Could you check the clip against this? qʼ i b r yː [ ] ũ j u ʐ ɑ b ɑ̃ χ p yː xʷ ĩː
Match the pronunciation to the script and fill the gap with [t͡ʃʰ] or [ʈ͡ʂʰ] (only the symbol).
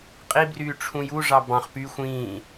ʈ͡ʂʰ